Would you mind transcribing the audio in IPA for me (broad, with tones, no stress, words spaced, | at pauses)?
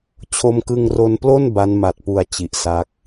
t͡ɕʰo˧mkɯ˧ŋro˧nplo˥˩n ba˦˥nma˨˩t̚pu˨˩a̯ t͡ɕi˨˩ʔsa˦˥k̚